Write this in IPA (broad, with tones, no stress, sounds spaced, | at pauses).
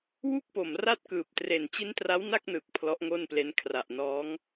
w u˥˩ k̚ p o˨˩ m r a˥˩ t̚ k ɯː˨˩ p̚ t r e˨˩ n t͡ɕ i˦˥ n t r a˦˥ w n a˥˩ k̚ n ɯː˨˩ k̚ pʰ l ɔ˦˥ ʔ ŋ o˥˩ n p l e˦˥ n kʰ r a˨˩ ʔ n ɔː˦˥ ŋ